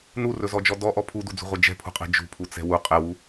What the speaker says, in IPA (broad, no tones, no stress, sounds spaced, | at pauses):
n u r ɵ z ɔ d͡ʒ ɔ d ɔ ʔ ɔ pʰ u d u d͡z ṳ ʁʷ ɛ d͡ʒ ɛ̤ pʰ ṳ qʼ ɛ̤ d͡ʒ ṳ pʰ u t͡s ɛ̤ w u qʼ ɛ w u